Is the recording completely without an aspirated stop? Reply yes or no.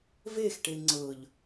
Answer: yes